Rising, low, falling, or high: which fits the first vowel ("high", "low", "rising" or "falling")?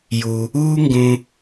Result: low